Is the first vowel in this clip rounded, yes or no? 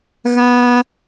no